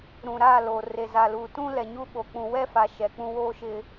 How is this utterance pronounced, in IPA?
ɾ ũ˨ ɾ a˦˨ l o˨ r e˨ z a˨ l u˨ t ũ˦ l ɛ˨ ɲ u˦ ɓ o˨ k͡p ũ˨ w ɛ˦ f a˨ ʃ ɛ˨ k͡p ũ˦ w oː˦ ʃ ɪ˨

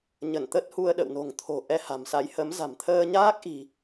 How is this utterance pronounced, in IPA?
ɲ ə˧˩ n t̪ ə˦˥ t̚ h u˧ ə̯ ɗ ə̰˧˨ w n o̤˨˩ ŋ t̪ʰ o̤˨˩ ʔ ɛ˧ h a̤˨˩ m s a˨˦ j h ə˨˦ m z a̤˨˩ m t̪ʰ əː˧ ɲ aː˦˥ k̚ ʔ i̤˨˩

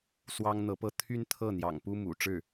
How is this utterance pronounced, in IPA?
s w ɑ˥ ŋ n̪ ɤ˧˥ p ɤ˥˩ t̪ʰ y˥ n t̪ʰ ɤ˥˩ n̪ j ɑ̰˨˩ ŋ p u˥ m ṵ˨˩ ʈ͡ʂ ɻ̩˥˩

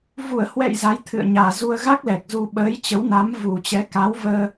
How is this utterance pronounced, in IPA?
v u˧˩ ə̯ h w ɛ̰˧˨ j z a˨˦ j t̪ʰ ɨ̰˧˨ ə̯ ɲ aː˨˩ z u˧ ə̯ ɣ a˦˥ k̚ l ɛ˨˩ k̚ z u˧ ɓ əː˨˦ j t͡ɕ ə˨˦ w n a˨˦ m v u˨˩ t͡ɕ ɛ˨˦ k a˨˦ w v əː˧

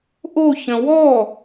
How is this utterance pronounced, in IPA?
ʔ o ç ə̃ w ɔ

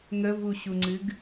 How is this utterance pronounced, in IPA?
ŋ ə v u ɕ u ŋ͡ǀ ɨ ɡ

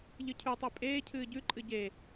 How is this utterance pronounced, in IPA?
ʎ ɨ cʰ ʉ tˤ e pʼ eː cʰ ɨː ɟ ʉ ǃʼ ɨ ɟ e

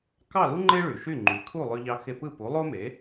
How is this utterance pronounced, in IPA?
k ɑ˥˩ l u˥ ŋ͡ǃ e˥ ɭ y˩ ʃ y˥˩ ŋ͡ǃ y˩˥ kʰ u˥˩ lˠ ø˧ ʎ ɑ˧ x e˧ p ɯ˥˩ p u˩˥ lˠ o˥ m e˩˥

